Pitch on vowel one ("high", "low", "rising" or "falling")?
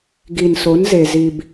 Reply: low